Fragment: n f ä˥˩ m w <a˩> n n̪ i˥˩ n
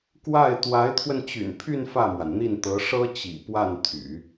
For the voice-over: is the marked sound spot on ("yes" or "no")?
yes